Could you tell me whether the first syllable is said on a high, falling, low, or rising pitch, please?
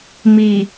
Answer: low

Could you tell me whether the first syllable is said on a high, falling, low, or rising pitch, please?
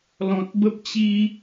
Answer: low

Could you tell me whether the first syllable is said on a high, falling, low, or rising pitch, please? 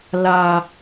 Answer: low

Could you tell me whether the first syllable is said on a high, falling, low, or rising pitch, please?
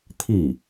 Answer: falling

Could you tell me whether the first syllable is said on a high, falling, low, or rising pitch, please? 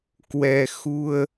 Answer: low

